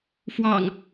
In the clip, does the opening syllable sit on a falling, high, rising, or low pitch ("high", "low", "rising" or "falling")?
low